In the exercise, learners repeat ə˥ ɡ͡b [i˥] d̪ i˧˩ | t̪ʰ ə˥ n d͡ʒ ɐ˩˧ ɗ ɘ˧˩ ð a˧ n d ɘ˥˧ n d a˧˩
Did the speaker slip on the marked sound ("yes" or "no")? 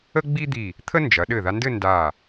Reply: no